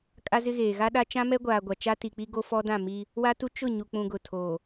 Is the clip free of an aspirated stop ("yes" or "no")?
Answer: no